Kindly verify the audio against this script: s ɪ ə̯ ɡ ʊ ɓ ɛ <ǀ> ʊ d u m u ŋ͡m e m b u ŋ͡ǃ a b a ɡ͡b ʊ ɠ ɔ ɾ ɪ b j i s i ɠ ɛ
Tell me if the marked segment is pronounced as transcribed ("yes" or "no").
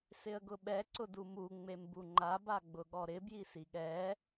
yes